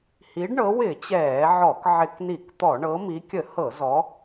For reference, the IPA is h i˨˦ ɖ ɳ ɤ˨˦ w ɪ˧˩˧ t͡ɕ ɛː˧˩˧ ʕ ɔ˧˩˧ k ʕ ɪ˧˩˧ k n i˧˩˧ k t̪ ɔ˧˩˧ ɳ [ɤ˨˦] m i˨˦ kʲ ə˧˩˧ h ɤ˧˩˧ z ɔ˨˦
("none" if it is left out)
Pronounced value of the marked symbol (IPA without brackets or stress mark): ɤ˨˦